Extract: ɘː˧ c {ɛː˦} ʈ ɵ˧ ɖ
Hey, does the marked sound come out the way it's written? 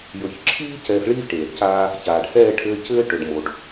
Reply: no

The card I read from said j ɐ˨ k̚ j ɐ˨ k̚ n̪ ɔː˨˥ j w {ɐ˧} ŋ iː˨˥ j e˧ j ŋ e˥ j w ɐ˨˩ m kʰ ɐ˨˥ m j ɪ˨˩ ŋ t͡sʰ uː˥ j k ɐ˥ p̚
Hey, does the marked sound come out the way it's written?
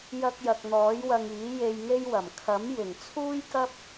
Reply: yes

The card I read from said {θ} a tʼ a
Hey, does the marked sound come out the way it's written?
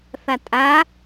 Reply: yes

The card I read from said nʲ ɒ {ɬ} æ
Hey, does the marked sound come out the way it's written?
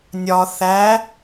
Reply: no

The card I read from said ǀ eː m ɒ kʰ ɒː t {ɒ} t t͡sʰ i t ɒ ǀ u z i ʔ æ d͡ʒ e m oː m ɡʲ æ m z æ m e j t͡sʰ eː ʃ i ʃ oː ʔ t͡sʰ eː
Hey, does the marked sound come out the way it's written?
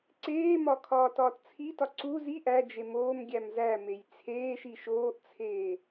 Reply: no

